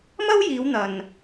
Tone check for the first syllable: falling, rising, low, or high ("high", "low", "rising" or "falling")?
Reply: high